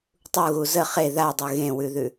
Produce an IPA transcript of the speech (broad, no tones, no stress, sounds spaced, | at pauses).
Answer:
tˤ u ɣ u z ə χ e ð a dˤ ʉ ɣ ẽ w ʉ ð ʉ